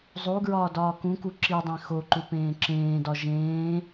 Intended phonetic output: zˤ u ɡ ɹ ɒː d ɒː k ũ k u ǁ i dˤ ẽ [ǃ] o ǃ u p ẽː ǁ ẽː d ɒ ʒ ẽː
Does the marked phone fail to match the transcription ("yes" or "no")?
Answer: yes